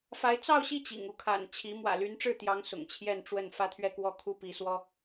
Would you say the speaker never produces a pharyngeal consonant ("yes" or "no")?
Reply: yes